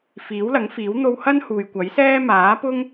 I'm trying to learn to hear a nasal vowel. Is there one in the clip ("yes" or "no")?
no